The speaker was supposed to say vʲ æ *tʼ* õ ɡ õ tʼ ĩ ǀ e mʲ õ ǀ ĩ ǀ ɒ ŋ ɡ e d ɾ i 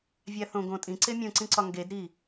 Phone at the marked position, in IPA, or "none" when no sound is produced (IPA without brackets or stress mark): θ